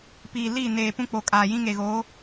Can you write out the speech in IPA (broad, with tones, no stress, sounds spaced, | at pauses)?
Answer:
p iː˨ l i˦˨ n eː˨ p ũ˦ k͡p o˨ kʼ aː˨ j ĩ˦ ŋ e˨ ɣ oː˨˦